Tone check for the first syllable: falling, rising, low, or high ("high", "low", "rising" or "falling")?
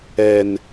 low